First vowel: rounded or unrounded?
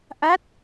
unrounded